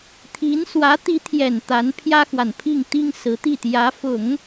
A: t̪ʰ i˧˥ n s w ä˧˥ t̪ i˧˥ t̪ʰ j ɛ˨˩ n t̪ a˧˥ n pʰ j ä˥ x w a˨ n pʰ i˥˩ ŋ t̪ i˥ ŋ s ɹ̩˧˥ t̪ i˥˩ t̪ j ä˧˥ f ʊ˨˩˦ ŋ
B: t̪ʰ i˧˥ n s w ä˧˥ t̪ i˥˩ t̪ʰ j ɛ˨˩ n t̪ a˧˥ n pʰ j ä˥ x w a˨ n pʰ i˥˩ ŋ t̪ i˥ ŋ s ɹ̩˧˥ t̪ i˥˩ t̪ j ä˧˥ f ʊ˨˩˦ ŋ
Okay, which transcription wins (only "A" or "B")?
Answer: A